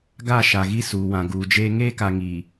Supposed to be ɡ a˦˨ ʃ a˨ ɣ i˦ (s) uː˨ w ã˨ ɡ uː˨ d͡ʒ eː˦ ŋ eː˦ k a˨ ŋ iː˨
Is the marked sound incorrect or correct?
correct